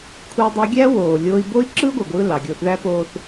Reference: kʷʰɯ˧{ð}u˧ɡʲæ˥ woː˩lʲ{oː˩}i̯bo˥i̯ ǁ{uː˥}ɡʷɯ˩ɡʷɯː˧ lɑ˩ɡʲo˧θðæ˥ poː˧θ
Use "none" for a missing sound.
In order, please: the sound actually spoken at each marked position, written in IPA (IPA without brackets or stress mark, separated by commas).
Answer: dˤ, oː˧, ɯː˥